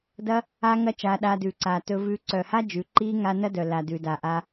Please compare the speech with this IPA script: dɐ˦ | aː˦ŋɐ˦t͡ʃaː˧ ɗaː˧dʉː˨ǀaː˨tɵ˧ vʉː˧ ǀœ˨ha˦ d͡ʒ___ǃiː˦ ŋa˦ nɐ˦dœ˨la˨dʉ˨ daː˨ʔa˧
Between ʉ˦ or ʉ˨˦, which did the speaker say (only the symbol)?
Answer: ʉ˨˦